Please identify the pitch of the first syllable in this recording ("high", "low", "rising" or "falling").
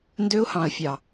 high